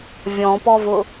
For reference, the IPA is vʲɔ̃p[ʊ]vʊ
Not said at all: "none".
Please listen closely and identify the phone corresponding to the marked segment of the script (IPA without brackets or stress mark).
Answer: ɔ